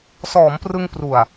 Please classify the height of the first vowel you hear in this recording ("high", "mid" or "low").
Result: mid